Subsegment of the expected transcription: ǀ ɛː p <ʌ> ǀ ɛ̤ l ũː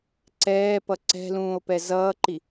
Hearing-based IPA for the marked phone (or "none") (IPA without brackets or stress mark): ʌ